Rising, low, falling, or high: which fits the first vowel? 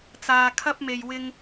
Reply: low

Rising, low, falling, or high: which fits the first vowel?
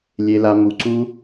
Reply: high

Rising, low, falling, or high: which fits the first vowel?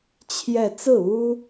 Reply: falling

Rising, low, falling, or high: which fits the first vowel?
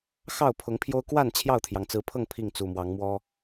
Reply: falling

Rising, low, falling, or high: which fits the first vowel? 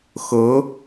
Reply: rising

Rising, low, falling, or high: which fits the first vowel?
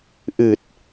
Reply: low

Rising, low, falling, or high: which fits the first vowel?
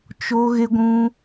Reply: high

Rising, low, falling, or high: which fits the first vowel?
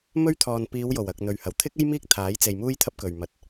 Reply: high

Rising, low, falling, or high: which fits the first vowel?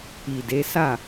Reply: low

